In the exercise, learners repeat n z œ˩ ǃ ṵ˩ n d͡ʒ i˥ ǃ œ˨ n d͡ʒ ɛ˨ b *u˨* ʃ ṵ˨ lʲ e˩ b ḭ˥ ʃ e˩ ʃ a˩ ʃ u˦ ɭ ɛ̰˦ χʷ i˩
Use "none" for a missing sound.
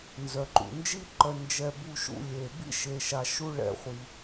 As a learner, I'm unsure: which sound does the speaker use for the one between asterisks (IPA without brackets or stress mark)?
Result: u˨